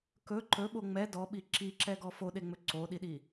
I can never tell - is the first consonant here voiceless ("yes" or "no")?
yes